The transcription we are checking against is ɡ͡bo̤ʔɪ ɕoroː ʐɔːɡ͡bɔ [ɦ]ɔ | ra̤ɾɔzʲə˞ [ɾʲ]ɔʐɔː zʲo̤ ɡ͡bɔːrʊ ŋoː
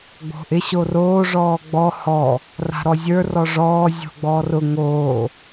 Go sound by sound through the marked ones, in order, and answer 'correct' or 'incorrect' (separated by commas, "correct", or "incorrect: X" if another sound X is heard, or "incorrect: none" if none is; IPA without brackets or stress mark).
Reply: incorrect: h, incorrect: r